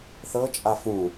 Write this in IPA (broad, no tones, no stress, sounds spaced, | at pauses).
θ ɤ t͡ʃʼ a f ũ